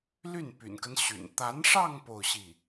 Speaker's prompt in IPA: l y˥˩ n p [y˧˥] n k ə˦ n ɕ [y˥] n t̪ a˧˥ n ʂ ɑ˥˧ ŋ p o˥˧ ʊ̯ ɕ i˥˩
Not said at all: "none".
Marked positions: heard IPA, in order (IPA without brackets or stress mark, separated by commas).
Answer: y̰˨˩, y̰˨˩